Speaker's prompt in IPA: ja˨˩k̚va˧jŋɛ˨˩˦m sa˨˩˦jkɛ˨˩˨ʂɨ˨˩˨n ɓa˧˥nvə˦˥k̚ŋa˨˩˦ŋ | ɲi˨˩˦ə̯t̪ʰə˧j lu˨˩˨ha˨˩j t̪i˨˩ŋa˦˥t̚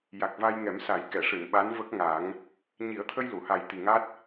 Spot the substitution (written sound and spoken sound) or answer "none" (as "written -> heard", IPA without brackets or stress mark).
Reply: none